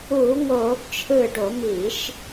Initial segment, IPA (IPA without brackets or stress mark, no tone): uː